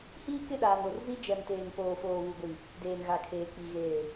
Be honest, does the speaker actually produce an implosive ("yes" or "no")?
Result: yes